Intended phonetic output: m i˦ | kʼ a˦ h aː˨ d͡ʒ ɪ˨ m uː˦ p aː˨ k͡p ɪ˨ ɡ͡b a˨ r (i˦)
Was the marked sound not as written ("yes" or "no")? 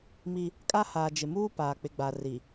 yes